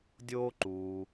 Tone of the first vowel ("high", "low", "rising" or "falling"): high